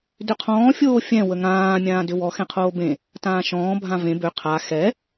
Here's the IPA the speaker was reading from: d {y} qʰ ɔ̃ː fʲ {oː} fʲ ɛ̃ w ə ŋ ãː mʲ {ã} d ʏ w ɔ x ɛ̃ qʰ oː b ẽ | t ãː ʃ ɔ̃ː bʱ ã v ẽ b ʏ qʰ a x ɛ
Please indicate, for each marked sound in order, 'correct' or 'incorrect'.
incorrect: ʏ, correct, incorrect: ãː

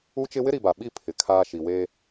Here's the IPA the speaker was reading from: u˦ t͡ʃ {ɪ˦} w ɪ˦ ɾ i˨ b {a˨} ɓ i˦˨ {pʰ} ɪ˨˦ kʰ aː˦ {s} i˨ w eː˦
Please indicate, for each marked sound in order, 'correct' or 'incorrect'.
correct, correct, correct, incorrect: ʃ

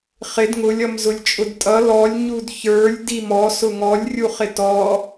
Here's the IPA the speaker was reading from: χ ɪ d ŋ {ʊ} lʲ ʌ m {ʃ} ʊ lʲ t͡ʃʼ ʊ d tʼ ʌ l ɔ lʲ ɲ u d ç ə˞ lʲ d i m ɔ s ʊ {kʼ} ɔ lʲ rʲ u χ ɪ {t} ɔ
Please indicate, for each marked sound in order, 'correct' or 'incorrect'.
correct, incorrect: z, incorrect: ŋ, correct

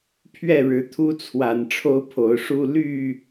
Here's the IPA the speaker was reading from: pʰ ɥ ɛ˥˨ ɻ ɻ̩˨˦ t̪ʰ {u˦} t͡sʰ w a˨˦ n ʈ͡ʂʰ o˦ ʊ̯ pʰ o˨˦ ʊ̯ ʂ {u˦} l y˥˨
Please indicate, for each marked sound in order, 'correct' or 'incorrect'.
correct, correct

